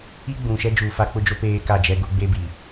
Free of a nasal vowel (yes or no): no